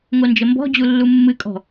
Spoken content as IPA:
ŋond͡ʒəmbɔ̤d͡ʑu lːumːɨkʼɔ̤

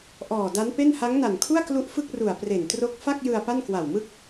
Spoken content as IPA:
ʔɔː˨˩da˦˥npe˥˩n ha˦˥ŋna˨˩nkʰu˥˩a̯klu˦˥ʔ fɯ˥˩k̚ru˨˩a̯pre˨˩ntro˦˥k̚ fa˥˩k̚jɯ˧a̯ pa˥˩nkwa˨˩wmɯ˥˩k̚

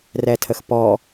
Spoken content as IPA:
rɛtʰəxpɔ

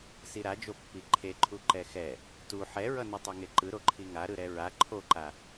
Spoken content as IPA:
siɾad͡ʒo pːiǃʰeǃʰu ǃɛxɛ | tu ħɛɹʌ nitˤoŋeǃɯ ɾoǃʰiŋa ɾɯɾɛɹa ǃʰoǃa

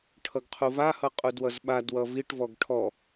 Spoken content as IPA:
ʈʰʌɡqʰuvahʌ qʼudwʌzɓadwʌ viʈvɔɡ ʈʰɔ

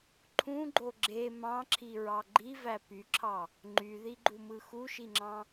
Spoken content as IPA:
ǃʰũɡ͡ǃo ɡ͡ǁe mɑ̃ǁʰiɹɑ ɡ͡ǃivæ pyǁʰɑ | ŋ͡ǃyðiɡ͡ǃumɯ xuʃiŋ͡ǁɑ̃

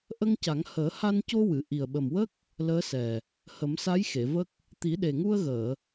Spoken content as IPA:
ʔə˧ŋca˨˩˦ŋ həː˨˩˦ha˧nco˧wɨ˨˩˨ ʔi˨˩ə̯ɓə˨˩mwə˦˥k̚ | ləː˧˥sɛ˨˩ | hə˨˩˦msa˧˥j xe˨˩˨və˦˥k̚ | t̪i˨˩˦ɗe˨˩ŋu˧ə̯ɣəː˨˩˨

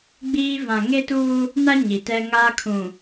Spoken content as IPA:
ɡ͡biː˦ vã˨ŋe˦tuː˦ | na˦ ɲi˨tɛ˦ŋaː˦kʰũ˨

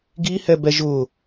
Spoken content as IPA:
ɡihɛbɛ ʒʊ

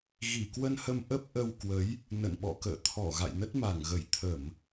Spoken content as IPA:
ɣi˧˩kwə˧nhə˧m ʔə˦˥p̚ ʔə˧wkwə˨˦j | nə̰˧˨nɓɔ̰˧˨kə̰ː˧˨ t̪ʰɔ˧˩ ɣa̰˧˨jnə˦˥t̚ma˧˩ŋɣə˧˩j t̪ʰə˧˩˨m

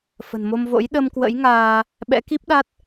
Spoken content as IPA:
fə̤˨˩nmo˧mvo̰˧˥j ɗə˧mkwə̰˧˥jŋaː˧ | ɓɛ̰˧˥ki˦˥p̚ɗa˦˥t̚

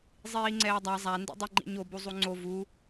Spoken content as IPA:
zˤiːŋ͡ǀɛːdˤa zˤa ndḭdˤiŋ͡ǃḭɲo buzˤuŋ͡ǀo vu

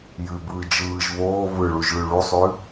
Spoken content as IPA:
jʉbɯː d͡ʒɯːʒ βoː βɯɭuʒɭʉ ɭusˤʉ

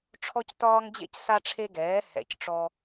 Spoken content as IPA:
ʈ͡ʂʰɔ˦ctɒː˦ŋd͡ʑḛ˦c sa˦ʈ͡ʂʰe˦ɡɛː˨˥ hɛ̰˧˩cʈ͡ʂɔ˦

